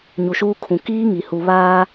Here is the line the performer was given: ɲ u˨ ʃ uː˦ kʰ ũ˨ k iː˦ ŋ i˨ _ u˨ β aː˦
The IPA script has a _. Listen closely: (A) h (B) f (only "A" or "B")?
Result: A